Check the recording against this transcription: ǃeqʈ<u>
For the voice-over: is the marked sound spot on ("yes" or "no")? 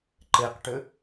no